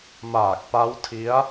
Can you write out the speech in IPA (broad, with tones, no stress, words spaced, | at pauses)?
maː˨˩k̚pa˦˥wtʰi˦˥a̯